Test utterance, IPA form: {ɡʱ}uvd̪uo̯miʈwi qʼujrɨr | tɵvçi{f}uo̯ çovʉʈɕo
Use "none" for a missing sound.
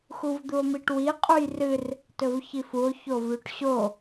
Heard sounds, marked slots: x, f

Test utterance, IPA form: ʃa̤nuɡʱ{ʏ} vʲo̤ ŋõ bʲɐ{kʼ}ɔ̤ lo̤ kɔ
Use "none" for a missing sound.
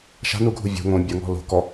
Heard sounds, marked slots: u, ŋ

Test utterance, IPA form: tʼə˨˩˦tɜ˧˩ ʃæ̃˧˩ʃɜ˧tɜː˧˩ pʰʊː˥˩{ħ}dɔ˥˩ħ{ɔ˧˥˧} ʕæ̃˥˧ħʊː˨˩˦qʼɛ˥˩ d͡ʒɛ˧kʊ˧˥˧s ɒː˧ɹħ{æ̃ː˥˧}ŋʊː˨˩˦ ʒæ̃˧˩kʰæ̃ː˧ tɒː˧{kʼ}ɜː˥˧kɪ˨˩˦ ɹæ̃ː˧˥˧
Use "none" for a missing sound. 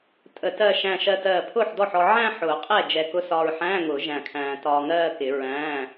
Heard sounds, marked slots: ħ, ɔ˧, æ̃ː˧˥˧, ŋ

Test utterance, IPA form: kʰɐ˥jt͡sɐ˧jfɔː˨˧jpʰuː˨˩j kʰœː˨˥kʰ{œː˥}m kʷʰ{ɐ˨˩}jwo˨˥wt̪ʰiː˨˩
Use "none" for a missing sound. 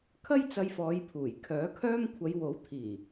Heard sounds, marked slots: œː˥, ɐ˨˧

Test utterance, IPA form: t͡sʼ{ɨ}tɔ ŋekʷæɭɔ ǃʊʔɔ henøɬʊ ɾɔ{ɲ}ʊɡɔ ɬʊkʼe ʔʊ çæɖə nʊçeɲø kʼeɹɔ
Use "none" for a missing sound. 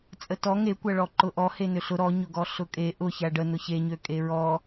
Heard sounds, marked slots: ə, ɲ

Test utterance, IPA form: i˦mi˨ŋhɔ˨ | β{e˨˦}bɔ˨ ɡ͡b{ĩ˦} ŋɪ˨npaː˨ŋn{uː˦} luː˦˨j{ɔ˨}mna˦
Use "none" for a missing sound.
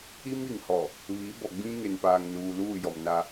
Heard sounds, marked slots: i˨˦, ĩ˦, uː˨, ɔ˨

